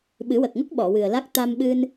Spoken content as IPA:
ɓɨ˨˩˦wə˨˩k̚ŋə˦˥k̚ ɓɔ˨˩˨wɨ˨˩ə̯la˦˥k̚ t̪a˧mɓɨ˧n

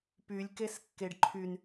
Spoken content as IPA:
pylʲ keskːeɖǃʰyn

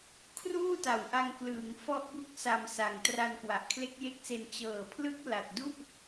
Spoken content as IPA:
kʰruː˥˩ta˨˩wʔa˧ŋ klɯː˩˦ŋ fɔ˦˥ʔbu˦˥k̚sa˧m sa˨˩ŋtra˧n kwa˨˩ʔkʰle˦˥k̚je˦˥k̚se˧n t͡ɕɤː˨˩pʰlɯ˦˥k̚ la˨˩t̚du˥˩ʔ

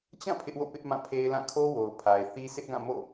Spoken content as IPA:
t͡ɕã˦˨ pʰɪ˦ʔwo̰˦˨pɪ˦ʔ mã˦˨pʰe˦ɪ̯lã˦˨ kʰo˦wo˨ʊ̯ pʰa˨ɪ̯θi˦ sʰɪ˦ʔɡã˦˨ mo̰˦˨

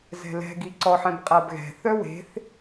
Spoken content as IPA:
zɛ̤lɛ̤ɡi ǀɔħɛ̃b qʼabɣɛ̤θœ we̤θ

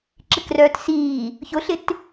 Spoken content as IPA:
ǁɪkrœːtsiː | çʊɬɪt

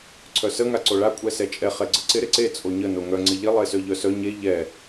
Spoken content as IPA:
ǀʰœsə ŋaǀoɭa kʷʼɛsɛt͡ʃʼɛ χɛɡ͡ǀəǀɪ ɾɪǀe t͡sʼoɲə noŋœ ŋ͡ǀɪʎɪ lˠesœʎœsœ ɲe ʎɛ

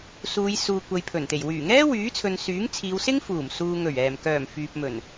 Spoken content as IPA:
suː˨˧jsuː˨ kʷɐ˨jpʰɵ˨˩nt̪e˨˩j wyː˨˩ŋɛː˥wyː˨˥t͡sʰɵ˨n syː˨˥ŋt͡sʰiː˨˧wsɪ˥ŋ fuː˨˩msuː˨ŋɵ˨˩ɥ ɛː˨˩mkœː˨˩m fyː˨p̚mɵ˨˩n

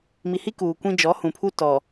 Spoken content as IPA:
mi˨hi˦ kuː˨kʷĩ˦ d͡ʒɔ˨˦hũ˨pʰu˦ tɔ˨

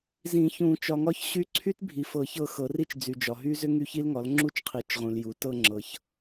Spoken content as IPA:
zĩ˨˩˦çũ˨˩˦ t͡ʃɒ˨ŋɒ˦˨çɕy˦˨ ǀʰy˦˥tbʱi˨fɤ˨˩˦ çɤ˦˨xɤ˨˩˦ri˦˥t͡ʃ d͡zy˨d͡ʒɒ˨ɦy˦˥ zʏ˦˥ŋy˦˨çi˦˥lŋɒ˩˥l ŋ͡ǁu˦˥t͡ʃqʰi˨˩˦t͡ʃʁũ˨l ju˩˥ tɤ˦˨ ŋ͡ǁɤ˨ç

